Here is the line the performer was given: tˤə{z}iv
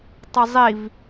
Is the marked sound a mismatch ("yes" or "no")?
yes